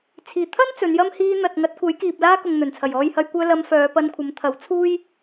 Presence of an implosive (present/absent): absent